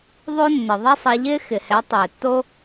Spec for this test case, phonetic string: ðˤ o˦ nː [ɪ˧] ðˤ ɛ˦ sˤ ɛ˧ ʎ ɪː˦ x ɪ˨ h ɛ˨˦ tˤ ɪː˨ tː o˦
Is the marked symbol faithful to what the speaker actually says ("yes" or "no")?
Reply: no